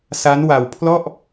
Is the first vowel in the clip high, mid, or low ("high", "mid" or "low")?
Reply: low